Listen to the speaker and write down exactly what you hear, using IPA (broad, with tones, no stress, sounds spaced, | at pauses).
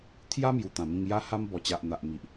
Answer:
t̪ʰ j a˦ m j u˨˩ t̪ ã˨˩ m ĩ˧ ŋ j a˦ h a˦ m b ɔ˨˩ t͡ɕ a˨ ʔ n̪ a˨ ʔ m i˨ ʔ